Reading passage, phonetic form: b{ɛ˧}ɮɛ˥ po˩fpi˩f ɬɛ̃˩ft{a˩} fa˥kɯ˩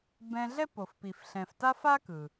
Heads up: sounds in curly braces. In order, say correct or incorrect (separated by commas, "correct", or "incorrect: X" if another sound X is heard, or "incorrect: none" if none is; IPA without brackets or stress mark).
incorrect: ɛ̃˧, incorrect: a˥